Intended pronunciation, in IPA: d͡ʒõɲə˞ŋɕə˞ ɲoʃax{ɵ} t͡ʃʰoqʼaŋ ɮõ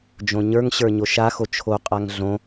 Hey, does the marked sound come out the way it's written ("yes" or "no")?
no